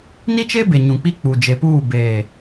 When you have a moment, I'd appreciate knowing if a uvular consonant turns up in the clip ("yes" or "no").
no